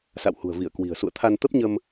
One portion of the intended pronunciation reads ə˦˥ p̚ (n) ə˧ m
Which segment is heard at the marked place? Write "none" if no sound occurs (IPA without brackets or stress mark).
ɲ